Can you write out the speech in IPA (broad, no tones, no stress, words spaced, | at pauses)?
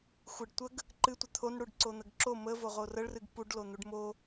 xʷɨɖtʷəɡ | ǃɨtʷə t̪ʰonɽuɖǀo n̪əɡǁo məvo ʁorəɭrɨɡ puɖlo n̪uɖmo